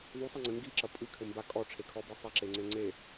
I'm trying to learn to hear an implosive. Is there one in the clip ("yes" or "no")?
no